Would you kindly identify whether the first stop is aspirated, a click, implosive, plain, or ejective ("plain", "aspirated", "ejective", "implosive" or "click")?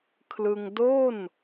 aspirated